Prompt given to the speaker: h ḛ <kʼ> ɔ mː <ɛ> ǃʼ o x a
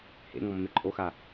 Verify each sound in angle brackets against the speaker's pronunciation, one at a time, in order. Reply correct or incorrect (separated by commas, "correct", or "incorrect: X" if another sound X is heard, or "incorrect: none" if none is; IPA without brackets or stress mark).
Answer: incorrect: ŋ, incorrect: e